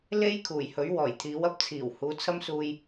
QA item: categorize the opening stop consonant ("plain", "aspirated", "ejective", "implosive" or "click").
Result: aspirated